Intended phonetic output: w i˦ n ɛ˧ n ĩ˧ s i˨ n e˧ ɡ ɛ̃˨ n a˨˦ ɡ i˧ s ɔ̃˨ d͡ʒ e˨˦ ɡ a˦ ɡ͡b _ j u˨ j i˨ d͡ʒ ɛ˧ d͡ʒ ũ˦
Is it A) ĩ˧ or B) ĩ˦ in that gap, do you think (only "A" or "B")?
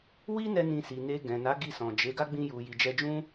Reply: A